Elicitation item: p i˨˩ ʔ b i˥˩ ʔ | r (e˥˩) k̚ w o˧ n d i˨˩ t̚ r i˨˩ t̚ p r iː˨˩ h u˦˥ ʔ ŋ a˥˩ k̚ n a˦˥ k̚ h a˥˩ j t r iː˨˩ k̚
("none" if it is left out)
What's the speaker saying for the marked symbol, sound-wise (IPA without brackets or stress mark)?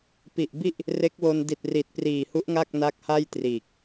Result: e˦˥